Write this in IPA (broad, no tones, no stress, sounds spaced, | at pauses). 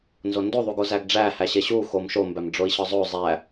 n z o n d o ðˤ u ɡ o z æ ɡ ɖ͡ʐ æ h æ ɕ e ɕ u x o m ʃ o m b æ m ɖ͡ʐ o i̯ ɕ ɒ zˤ o zˤ æ